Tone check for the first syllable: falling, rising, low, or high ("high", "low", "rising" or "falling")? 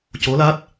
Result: rising